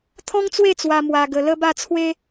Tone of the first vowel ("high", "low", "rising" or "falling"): high